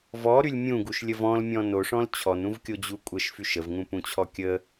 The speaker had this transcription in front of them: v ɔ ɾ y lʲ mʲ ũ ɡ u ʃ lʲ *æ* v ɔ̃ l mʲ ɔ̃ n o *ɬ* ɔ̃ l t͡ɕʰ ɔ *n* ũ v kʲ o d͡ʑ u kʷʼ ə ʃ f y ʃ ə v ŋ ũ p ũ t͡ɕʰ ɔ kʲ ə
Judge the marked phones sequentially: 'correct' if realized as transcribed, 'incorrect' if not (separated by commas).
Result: incorrect, incorrect, correct